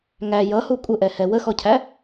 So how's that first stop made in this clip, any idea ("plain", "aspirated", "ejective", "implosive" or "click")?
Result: ejective